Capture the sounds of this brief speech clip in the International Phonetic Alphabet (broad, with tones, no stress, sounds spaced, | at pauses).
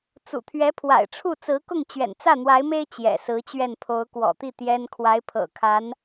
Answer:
t͡s ṵ˨˩ t̪ʰ ɥ ɛ˧˥ pʰ w a̰˨˩ ɪ̯ ʈ͡ʂʰ u˥˩ t͡s ɹ̩˧˥ k ʊ˥˩ ŋ t͡ɕ ɥ ɛ̰˨˩ n t͡s ä˥˩ n̪ w a˧˥ ɪ̯ m e˥ ɪ̯ t͡ɕ j ɛ̰˨˩ s ɹ̩˧˥ t͡ɕ ɥ ɛ˥˩ n pʰ o˧˥ ʊ̯ k w ɔ̰˨˩ t̪ i˥˩ t̪ j ɛ˥ n kʰ w a˧˥ ɪ̯ pʰ ɤ̰˨˩ kʰ a˧˥ n